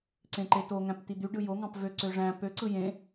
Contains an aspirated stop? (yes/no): no